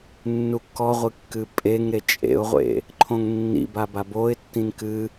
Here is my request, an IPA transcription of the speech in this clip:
nː u kː ɔ ʁʷ ɨ kː ɨ pʼ e ŋ ɾ e t͡ʃʼ ḛ ʊ̯ ʁʷ ḛ | ǃʰ õ ŋ nː ḭ b a b a b o ɪ̯ tː ĩ n k ɨ

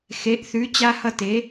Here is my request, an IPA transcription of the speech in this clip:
x e˧˥ ʔ θ ʉ˧˥ t͡ɕ a˥ h ʌ˥ t e˧˥

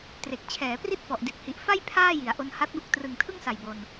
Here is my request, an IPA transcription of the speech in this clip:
t r e˨˩ k̚ t͡ɕʰ ɛː˩˦ p r i˥˩ t̚ f ɔ˨˩ ʔ d i˨˩ t̚ h i˨˩ ʔ f a˥˩ j pʰ aː˥˩ j i˩˦ a̯ ʔ o˧ n h a˦˥ t̚ b u˦˥ k̚ t r ɯ˨˩ ŋ tʰ ɯ˥˩ ŋ s a˨˩ j b o˧ n

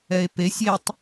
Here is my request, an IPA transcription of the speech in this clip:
ɛ e̯ p e sʲ e tˤ

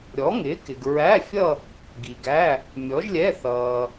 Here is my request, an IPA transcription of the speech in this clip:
ɾʲ ɔ˨˥ ŋ ɪː˨˥ k ɪ˨ ɡ ɹ æ˧˥˧ fʲ ʌ˥˧ | ɡ i˨ ɡ æ˧˥˧ | mʲ ɔ˨˥ ʒ lʲ ɛ˧˥˧ θ ʌː˨

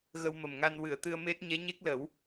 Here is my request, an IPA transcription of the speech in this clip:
ɣ ə˧ w m ə˨˩ m ŋ a˧ n w ɨ˨˩˨ ə̯ t̪ ɨ˧ ə̯ m e˦˥ t̚ ɲ ɛ˧˥ ɲ e˦˥ k̚ l ə˨˩˦ w

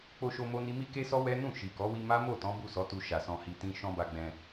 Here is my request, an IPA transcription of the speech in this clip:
k͡p o˧ ʃ o˧ m o˦ n i˦ m i˦ k e˦ s ɔ˦ w ɛ˦ n ũ˦˨ ʃ i˨ k ɔ˨˦ w i˦ m a˦ m o˦˨ t ɔ̃˨˦ b u˦˨ s ɔ˨˦ t u˧ ʃ a˨ s ɔ̃˧ h i˧ t ĩ˦ ʃ ɔ̃˧ b a˧ ɡ͡b ɛ̃˧

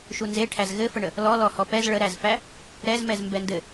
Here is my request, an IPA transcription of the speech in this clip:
ʃ u n z e ʈʰ æ z ɣ ɘ f ə ɳ ə | l ɔ l ɔ h ɔ p ɛ z ɭ ə ɾ æ z f æ | ɾ ɛ z m ɛ z m b ɛ n d ɘ

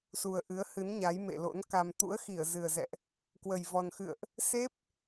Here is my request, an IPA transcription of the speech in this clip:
s u˨˩ ə̯ ʔ ɨ˨˦ ə̯ h ɨ˨˦ n ɲ a˨˦ j m ḛ˧˨ l o̰˧˥ n k a˧ m t̪ ṵ˧˥ ə̯ x i˧˩ ə̯ z ɨ˨˩ ə̯ z ɛ̰˧˨ ʔ | k w ə˨˩ j v ɔ˨˩ n x ɨ̰˧˨ ə̯ ʔ | s e˦˥ p̚

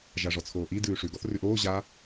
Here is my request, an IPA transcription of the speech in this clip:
ʒ a ʐ ɔ t͡sʰ oː ʔ i d ʉː ʂ ʉ ɡ ɔ θ r ʉ ʔ oː ʑ a

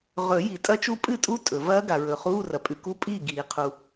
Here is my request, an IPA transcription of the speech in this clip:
ʁ ɵ˨˩˦ j i˨˩˦ tʼ ɐ˦˥ t͡ʃ u˦˥ pʼ ɨ˥˩ tʼ u˦˥ tʼ ɵ˨˩˦ v ɐː˦˥ ɡ a˨ ɹ ɵ˨˩˦ χ uː˧˥˧ r ɐ˨ pʼ ʉ˨ k u˦˥ pʼ iː˥˩ ɡ iː˨˩˦ qʰ u˨

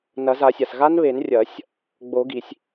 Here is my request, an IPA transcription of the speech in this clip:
n ɐ˨˩˦ z a˨˩˦ sʲ a˩ s ɣ a˦˥ n β e˨˩˦ n rʲ ɐ˨˩˦ sʲ | ɡ͡b o˨˩˦ ɡ i˩ sʲ

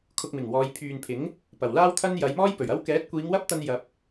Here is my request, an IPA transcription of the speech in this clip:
kʰ ʊ˧ k̚ m ɪ˨˩ ŋ w ɔː˨˧ j pʰ yː˨ n pʰ ɪ˨˥ ŋ | p ɐ˨˩ w l aː˥ w t̪ʰ ɐ˥ n j ɐ˨˧ j m ɔː˥ j p ɵ˨˩ ɥ ɐ˥ w k ɛː˨˥ t̚ kʷ iː˨˧ ŋ w ɐ˥ p̚ t̪ ɐ˧ n j ɐ˧ p̚

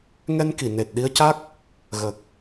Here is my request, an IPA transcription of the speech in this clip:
ŋ ɛ˧ n k i˨˩˨ n e˨˩ t̚ ɗ i˧ ə̯ c a˦˥ k̚ | ɣ ə˨˩ k̚

